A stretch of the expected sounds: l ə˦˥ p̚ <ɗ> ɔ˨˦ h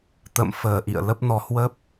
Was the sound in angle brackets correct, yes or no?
no